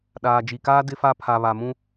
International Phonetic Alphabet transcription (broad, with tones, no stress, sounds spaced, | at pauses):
ɗ aː˨ d͡ʒ i˨ k aː˦ d ɪ˦ f a˦ pʰ a˨ β a˨ m ũ˦